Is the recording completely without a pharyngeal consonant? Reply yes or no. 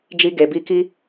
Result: yes